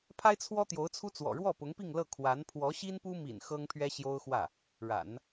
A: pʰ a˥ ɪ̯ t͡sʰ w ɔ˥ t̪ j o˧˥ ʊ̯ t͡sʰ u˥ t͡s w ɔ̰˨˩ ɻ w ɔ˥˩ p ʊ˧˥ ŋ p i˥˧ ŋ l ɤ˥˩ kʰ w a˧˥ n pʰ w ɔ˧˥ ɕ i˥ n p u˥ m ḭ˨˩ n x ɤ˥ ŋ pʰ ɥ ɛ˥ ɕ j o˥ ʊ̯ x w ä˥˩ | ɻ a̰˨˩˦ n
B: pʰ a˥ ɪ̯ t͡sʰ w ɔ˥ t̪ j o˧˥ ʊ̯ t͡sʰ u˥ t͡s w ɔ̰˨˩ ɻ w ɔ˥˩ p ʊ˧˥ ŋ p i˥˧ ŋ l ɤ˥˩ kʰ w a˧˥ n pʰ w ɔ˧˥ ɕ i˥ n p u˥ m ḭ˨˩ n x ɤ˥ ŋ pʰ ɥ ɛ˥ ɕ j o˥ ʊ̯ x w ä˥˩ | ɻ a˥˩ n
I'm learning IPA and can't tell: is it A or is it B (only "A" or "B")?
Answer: A